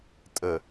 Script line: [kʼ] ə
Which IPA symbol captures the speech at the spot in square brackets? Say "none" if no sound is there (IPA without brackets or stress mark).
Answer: tʼ